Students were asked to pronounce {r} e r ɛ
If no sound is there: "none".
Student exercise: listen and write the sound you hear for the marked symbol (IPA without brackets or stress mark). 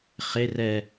χ